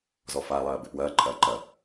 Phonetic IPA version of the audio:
z ɔ f a lˠ ɐː b ɘ p w ɐː ǃʼ ɐː ǃ ɐ

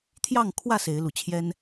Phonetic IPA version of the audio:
t̪ʰ j ɑ˥˨ ŋ kʰ w ä˥˨ s e˨˦ ɪ̯ l u˨˩ t͡ɕʰ j ɛ˦ n

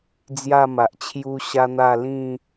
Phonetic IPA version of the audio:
d͡z j a˥˧ m a˨ ʔ t͡ɕʰ j u˦ ɕ a˦ n̪ a˥˧ l ĩ˥˧

